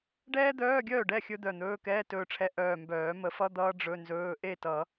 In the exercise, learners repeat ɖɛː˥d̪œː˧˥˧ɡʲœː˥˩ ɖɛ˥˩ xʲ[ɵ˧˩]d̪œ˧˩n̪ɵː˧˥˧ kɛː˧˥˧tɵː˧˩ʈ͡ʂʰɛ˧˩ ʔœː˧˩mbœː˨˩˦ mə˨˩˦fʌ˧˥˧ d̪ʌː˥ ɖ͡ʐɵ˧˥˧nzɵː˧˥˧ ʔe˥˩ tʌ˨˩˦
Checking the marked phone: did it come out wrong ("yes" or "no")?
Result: yes